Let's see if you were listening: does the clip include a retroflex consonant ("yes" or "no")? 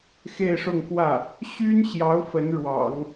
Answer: yes